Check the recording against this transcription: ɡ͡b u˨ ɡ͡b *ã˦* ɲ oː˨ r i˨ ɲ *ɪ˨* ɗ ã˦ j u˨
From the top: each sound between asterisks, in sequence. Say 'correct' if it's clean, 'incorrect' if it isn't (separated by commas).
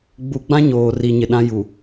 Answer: correct, correct